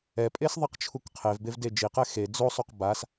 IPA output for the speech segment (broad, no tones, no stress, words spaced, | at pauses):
ɛpʼesðˤiqt͡ʃʰuk qʰevbev ded͡ʒiqɛ xe d͡zosˤoq bas